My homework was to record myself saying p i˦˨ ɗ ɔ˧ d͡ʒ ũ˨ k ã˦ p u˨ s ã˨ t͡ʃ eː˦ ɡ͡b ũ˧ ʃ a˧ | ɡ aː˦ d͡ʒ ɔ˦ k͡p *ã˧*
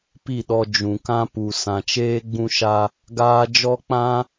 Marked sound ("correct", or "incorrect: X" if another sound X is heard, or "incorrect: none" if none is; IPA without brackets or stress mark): incorrect: ã˦